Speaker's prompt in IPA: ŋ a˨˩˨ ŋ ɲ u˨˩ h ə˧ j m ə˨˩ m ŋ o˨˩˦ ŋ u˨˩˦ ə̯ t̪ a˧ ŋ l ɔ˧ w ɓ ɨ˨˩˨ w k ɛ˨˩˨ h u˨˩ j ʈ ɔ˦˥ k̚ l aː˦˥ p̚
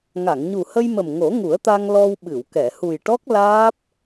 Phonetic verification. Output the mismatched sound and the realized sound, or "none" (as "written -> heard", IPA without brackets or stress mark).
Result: none